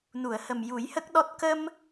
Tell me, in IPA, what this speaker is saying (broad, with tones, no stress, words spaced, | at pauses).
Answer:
nu˨˩˨ə̯hə˨˩m ju˨˩˦jhə˦˥k̚ɗɔ˦˥t̚ kə˧m